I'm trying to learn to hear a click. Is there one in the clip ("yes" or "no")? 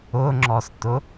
yes